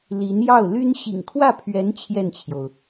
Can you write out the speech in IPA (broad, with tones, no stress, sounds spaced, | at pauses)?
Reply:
l i˧˥ n j ɑ˥˩ ʊ̯ l y˥ n ɕ ḭ˨˩ ŋ kʰ w ä˥˩ pʰ ɥ ɛ˧˥ n t͡ɕʰ j ɛ˥˩ n t͡ɕʰ j o˩ ʊ̯